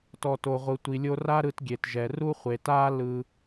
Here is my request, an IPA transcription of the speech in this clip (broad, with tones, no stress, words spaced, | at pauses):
tɔ˨to˨ʁʷɯ˨ tʷi˨lʲo˧ra˦ ɾɯ˧tɡʲe˨tʒɛ˨ ru˦χʷe˨taː˦ lɯ˧